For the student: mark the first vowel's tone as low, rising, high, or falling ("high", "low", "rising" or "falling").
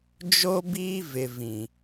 high